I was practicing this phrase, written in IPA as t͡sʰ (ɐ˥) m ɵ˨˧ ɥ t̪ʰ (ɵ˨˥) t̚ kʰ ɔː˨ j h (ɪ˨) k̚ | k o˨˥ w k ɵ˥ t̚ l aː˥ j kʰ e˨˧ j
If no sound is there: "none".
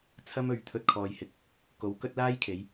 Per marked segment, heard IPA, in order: ɐ˥, ɵ˧, ɪ˨˥

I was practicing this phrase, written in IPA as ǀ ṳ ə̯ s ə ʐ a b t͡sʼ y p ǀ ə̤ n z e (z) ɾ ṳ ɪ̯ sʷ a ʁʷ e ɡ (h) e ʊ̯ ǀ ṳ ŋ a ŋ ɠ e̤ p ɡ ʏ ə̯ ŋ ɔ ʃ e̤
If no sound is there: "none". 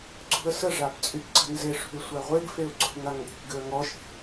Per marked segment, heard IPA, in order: ʂ, f

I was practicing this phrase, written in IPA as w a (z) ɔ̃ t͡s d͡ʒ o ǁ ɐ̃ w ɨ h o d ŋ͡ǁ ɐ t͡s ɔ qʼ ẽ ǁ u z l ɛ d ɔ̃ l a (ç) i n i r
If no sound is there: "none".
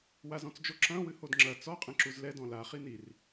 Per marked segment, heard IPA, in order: z, χ

